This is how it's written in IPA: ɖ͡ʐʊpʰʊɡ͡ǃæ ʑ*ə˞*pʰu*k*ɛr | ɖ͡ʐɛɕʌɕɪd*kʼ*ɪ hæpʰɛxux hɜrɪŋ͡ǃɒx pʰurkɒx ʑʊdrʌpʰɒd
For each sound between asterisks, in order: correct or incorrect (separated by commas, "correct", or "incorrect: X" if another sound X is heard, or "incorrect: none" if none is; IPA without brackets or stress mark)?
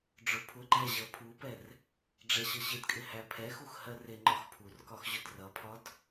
incorrect: ʌ, incorrect: p, correct